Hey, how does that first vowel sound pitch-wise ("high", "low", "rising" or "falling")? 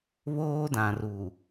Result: high